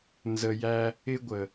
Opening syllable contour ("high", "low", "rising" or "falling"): low